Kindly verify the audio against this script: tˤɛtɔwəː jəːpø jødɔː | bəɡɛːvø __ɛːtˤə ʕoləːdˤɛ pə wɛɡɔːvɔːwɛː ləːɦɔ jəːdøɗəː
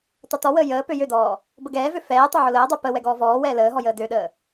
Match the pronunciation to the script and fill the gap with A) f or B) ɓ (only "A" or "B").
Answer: A